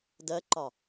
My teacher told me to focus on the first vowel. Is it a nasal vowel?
no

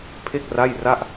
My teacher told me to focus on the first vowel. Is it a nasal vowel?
no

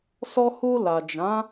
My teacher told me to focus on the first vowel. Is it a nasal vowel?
no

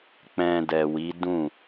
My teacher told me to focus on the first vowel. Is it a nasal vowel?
yes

